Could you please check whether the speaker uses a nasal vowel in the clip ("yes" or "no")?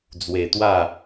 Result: no